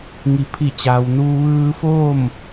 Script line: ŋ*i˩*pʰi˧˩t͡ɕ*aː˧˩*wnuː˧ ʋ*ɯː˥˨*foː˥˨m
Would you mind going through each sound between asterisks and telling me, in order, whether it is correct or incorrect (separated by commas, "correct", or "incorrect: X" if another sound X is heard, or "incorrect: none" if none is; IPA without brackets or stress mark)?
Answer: incorrect: i˩˧, incorrect: aː˩, incorrect: ɯː˧